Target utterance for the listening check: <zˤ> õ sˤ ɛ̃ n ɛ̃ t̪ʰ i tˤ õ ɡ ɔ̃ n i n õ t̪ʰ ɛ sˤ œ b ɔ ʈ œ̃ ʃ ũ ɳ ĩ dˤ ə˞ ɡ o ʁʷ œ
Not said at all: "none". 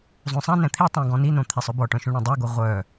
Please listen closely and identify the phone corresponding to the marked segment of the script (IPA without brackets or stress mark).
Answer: zˤ